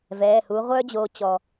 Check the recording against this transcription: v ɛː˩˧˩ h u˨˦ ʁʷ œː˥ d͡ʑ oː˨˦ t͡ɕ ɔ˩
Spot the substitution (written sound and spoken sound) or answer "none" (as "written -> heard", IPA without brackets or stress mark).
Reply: none